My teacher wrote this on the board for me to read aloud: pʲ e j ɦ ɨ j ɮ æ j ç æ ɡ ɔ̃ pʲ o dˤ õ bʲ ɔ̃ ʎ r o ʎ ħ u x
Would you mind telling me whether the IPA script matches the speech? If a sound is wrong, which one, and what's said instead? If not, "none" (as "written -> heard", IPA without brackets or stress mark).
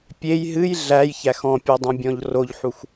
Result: ɡ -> x